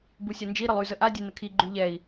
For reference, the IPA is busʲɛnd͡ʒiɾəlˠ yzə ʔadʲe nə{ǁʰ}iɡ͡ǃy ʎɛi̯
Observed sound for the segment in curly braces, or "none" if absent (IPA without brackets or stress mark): kʰ